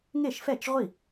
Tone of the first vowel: falling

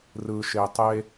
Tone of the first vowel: low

